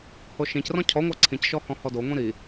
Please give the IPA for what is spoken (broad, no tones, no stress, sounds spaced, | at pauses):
h o ʃ ĩ c r ɔ̃ cʰ ɔ ŋʷ a ǀʰ ĩ c ʃ ɔ h ɔ̃ h ɔ d o ŋʷ ĩ ɾ i